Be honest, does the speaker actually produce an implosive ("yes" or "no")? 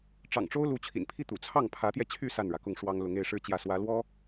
no